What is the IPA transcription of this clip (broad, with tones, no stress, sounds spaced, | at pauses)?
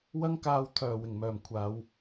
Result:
w ɐ˥ ŋ k aː˧ w t̪ʰ œː˨˩ w ɪ˨˩ ŋ m œː˨˩ m kʷʰ aː˨˧ w